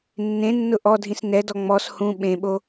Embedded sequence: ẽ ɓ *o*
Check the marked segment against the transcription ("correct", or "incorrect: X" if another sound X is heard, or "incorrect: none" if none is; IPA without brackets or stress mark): correct